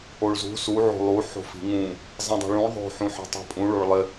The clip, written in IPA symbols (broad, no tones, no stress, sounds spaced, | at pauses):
o ɭ z ṳ s u ʕ o̤ lˠ u ħ o̤ f i̤ ŋ ũ | zˤ ɛ̃ dˤ o̤ ɭ ũ ɭ ðˤ o̤ ħ ũ ħ i̤ tˤ i̤ pʼ ũ ɭ o ɭ lˠ ɪ